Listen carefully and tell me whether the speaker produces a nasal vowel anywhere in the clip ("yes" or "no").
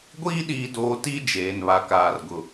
no